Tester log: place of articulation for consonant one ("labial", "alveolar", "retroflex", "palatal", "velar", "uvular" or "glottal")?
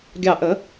velar